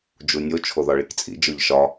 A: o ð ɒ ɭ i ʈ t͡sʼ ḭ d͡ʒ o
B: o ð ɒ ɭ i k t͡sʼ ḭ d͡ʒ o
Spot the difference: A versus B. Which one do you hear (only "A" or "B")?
B